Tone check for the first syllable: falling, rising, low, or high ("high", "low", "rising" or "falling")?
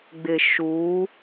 low